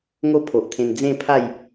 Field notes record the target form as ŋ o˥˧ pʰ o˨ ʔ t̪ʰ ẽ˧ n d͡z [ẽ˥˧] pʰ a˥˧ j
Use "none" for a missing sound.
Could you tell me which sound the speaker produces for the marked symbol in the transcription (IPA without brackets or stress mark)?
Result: ẽ˥˧